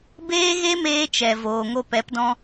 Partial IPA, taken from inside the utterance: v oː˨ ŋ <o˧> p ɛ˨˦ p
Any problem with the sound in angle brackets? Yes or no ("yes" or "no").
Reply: no